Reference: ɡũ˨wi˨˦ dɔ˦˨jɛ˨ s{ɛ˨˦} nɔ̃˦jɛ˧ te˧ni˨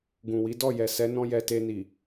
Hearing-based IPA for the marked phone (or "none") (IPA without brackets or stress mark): ɛ˨˦